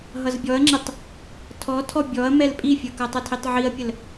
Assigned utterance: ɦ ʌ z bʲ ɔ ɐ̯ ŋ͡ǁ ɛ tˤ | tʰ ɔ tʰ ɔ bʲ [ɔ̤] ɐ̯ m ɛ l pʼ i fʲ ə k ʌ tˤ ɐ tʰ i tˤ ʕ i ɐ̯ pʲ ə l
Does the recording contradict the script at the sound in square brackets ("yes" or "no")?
yes